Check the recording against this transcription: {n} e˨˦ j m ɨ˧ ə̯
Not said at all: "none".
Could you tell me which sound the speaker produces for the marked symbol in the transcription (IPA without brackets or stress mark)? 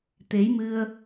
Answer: t̪